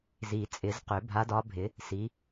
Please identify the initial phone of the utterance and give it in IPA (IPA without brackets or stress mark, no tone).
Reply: z